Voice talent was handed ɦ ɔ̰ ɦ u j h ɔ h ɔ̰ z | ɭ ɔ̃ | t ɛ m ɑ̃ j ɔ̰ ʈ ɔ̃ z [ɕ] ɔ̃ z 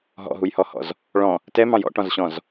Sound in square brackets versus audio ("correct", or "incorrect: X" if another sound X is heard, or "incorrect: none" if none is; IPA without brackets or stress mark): correct